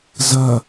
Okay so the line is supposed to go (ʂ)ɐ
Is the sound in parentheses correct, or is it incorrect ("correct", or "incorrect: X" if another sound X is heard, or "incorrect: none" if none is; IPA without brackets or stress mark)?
incorrect: z